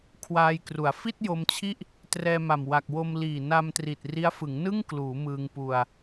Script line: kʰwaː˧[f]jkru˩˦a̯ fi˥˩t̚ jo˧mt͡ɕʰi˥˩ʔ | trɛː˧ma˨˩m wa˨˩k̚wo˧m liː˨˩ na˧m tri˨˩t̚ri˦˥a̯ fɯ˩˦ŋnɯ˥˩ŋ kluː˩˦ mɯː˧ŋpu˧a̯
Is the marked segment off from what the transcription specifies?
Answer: yes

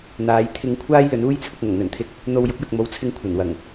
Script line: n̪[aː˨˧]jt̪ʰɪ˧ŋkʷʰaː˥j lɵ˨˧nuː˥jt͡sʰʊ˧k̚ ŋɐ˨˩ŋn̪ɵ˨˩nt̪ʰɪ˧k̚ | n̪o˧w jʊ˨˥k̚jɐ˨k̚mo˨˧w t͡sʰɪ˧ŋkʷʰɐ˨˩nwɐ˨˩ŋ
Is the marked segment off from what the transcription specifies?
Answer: no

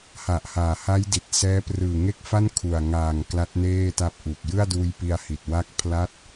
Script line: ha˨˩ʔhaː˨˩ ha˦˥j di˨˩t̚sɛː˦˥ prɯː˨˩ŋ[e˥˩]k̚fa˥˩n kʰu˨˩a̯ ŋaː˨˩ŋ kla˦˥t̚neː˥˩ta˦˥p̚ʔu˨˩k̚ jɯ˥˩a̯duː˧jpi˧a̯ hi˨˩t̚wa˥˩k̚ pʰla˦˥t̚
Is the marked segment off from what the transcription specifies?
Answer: yes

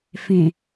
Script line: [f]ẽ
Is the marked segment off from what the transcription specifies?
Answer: no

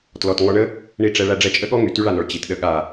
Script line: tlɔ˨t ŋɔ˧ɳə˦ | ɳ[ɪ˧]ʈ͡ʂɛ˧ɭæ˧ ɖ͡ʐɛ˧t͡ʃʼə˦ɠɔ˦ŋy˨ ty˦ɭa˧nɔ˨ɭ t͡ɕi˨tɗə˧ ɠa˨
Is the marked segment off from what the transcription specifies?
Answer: yes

